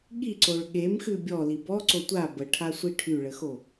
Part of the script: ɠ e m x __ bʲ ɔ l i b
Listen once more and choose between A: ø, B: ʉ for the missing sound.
B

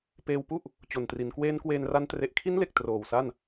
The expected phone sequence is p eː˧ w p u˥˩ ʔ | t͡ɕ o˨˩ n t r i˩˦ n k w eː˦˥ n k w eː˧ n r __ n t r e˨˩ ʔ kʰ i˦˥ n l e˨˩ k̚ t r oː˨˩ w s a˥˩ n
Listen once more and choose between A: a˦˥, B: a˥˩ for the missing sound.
A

